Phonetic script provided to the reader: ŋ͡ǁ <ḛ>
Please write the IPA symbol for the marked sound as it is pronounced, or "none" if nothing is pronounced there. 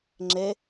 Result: e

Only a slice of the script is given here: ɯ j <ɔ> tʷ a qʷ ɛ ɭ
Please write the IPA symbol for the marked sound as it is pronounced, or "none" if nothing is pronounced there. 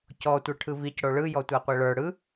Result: ɔ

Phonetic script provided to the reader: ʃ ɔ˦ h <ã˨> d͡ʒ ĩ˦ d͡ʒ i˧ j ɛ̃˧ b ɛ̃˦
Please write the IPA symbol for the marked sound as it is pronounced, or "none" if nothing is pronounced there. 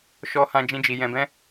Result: ã˦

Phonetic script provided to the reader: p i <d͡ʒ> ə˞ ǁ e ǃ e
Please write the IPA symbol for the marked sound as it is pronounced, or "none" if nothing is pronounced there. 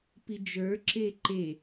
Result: d͡ʒ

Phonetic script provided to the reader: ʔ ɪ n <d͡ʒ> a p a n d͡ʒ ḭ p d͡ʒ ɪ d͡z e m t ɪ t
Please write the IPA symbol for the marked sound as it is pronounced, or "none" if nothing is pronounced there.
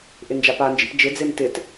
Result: d͡ʒ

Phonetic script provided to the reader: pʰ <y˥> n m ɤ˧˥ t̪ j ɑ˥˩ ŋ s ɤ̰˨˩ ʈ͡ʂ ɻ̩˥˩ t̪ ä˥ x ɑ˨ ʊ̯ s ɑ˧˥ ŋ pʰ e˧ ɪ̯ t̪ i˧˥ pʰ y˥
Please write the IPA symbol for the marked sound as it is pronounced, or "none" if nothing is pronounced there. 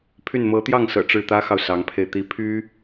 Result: y˥˩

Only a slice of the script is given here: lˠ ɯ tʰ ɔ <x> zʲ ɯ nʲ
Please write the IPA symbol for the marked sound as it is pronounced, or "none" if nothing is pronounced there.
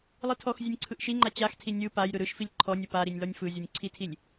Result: x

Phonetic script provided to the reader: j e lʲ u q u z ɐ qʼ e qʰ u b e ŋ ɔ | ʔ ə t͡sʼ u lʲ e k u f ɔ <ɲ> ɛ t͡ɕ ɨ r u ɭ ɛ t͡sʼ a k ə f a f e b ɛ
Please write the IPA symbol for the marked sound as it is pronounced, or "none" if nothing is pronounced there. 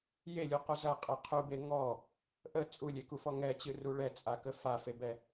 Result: ŋ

